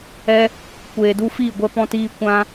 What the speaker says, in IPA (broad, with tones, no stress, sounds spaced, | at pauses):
ɛ˦ | kʷ eː˨ d u˧ f iː˦˨ ɡʷ ɛ˧ p ɔ̃˧ t iː˧ kʷ ã˦